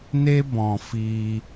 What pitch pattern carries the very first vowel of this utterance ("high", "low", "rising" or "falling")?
high